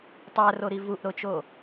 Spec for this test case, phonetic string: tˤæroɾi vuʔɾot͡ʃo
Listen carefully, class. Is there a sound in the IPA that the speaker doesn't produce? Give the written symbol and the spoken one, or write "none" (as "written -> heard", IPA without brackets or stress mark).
none